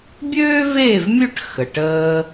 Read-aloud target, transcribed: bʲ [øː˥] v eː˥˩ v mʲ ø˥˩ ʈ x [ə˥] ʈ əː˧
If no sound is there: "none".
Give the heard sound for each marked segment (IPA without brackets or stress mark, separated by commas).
øː˥, ə˩